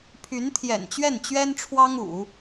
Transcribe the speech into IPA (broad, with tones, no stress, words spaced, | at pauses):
pʰy˧˥nt̪ʰjɛ̰˨˩nt͡ɕɥɛ˥˩n t͡ɕɥɛ˥nʈ͡ʂʰwɑ˥ŋṵ˨˩˦